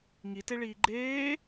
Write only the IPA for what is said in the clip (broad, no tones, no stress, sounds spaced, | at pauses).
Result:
ŋ i t e ɭ iː ɡ͡ǃ eː